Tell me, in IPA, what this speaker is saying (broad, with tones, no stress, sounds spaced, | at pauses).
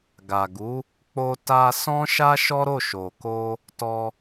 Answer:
ɡ a˨ ɡ u˨˦ | k͡p o˧ t a˧ s ɔ̃˦ ʃ a˦ ʃ ɔ˦ ɾ o˦˨ ʃ o˨ k o˧ | t ɔ˧